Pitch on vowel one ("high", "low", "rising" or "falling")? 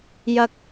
low